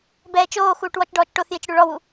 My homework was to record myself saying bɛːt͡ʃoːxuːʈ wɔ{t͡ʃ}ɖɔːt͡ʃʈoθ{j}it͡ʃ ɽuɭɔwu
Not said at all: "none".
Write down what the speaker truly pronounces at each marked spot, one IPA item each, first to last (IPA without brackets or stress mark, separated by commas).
t͡ʃ, j